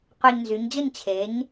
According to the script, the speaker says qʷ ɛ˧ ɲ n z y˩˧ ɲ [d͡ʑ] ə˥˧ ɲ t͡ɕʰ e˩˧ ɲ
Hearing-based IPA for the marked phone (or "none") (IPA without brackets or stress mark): d͡ʑ